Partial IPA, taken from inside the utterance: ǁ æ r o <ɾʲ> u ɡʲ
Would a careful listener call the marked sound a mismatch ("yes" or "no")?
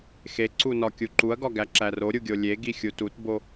no